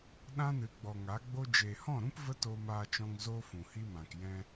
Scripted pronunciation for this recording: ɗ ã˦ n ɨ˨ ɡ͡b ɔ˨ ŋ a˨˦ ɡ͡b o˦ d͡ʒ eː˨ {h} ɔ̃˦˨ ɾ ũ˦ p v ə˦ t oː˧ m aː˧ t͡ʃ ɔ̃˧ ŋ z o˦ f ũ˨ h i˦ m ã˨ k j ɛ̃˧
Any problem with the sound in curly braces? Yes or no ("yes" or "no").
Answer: no